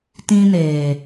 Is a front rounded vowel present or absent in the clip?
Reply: absent